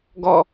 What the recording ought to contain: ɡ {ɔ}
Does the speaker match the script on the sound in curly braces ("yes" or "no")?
yes